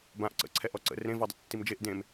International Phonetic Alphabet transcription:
bãʔ ǀə̰ǀʰɛʔɔ ǀə̰ rẽvɔdˤə̰ tːimd͡ʒeʔ dẽm

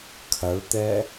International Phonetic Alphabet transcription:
kʰɐɭt̪ɛ

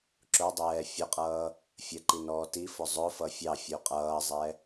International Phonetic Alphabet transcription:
ǁʊdˤɛː fʲʊqʼʌː | fʲəǃi nɔːtifʊ zˤʊfʌ fʲɑfʲu qʼʌːzˤɛ

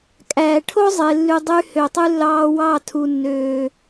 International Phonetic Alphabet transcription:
kʼæː˨ʈʰo˦ zˤe˨lːy˨ dˤy˧hø˨tˤy˧ lːɑː˨ wɑː˦˨tʰu˨nːøː˨

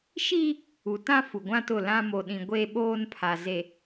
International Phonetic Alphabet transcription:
ʃiː˦ | u˨tã˦ fu˨ɡʷã˦tʊ˦˨ lã˦ mo˨ɗĩ˨ ɡʷeː˦ɓoː˦npʰa˨ze˨

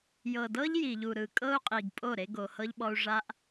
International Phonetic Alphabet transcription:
jɤ˨dɤ˦ʎji˨ʎu˨ ɾɯ˨kʼɤ˦u̯qʼi˨ɡpʼo˦˨ ɾe˦ɡo˨hɤ˦ʎɓɔ˦u̯ ʐa˦ʔ

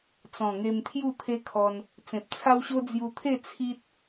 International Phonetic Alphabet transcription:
t͡sɔ̃˨˩ŋe˧mt̪ʰju˥˧ t̪ʰe˦kʰɔ˧n | t͡sẽ˨p̚t͡sʰa˦wɕo˦ d͡zju˧t̪ʰe˥˧ t͡sʰi˦t̚

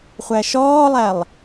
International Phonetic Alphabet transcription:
χʷæʃɔːlˠælˠ

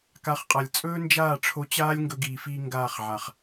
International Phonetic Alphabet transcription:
ka˨˦χqʼa˨lʲ t͡sʼɵː˦nd͡ʒaː˦˨ʈ͡ʂʰo˧t͡ɕaː˦lʲ ŋɡɵ˧ɡiː˨fiː˧ ŋɡaː˦˨χʕa˨χ

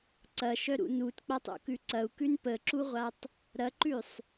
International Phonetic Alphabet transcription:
ǀɐʃœɾṵ nutk͡patˤo̰kʉ ǀɐu̯kʉn pəǁuʁʷatˤ | ɾɐǃʉsˤ

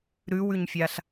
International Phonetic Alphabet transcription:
ɾʉwʉɲfʲaɬ

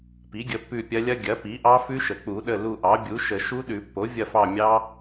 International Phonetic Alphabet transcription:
pi˩˥ɡʲə˩˧˩ pːʉ˦˨pʲɐ˦˥ lʲɐ˦˥ ɡʲɐ˩˥pi˩˥ʔɑ˦˥ fʉ˦˥ʃə˩k͡pu˨˩˦ ɗə˩˧˩ lu˦˨ʔɑ˩˥bʲu˩˥ʃə˨˩˦ ʃu˦˥ɗʉ˨˩˦pːo˩˥ vʲɐ˦˨fɑ˦˨mʲɑ˦˥

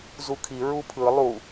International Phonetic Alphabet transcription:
zukʰi ɹupʰɯ lˠu

